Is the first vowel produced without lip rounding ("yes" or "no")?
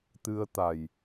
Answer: yes